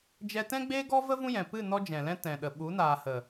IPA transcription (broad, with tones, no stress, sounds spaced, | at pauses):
d͡ʒ ɛ˧ t ɛ̃˦ ɡ͡b eː˦ ɡ ɔ˦ v ə˦ v ũ˦ j ɛ̃˨ p ɨ˦˨ n ɔ˦ d͡ʒ ɛ̃˨ l ɛ̃˦ t ɛ̃˨ ɗ ə˨ ɓ u˨˦ n aː˨ h ə˨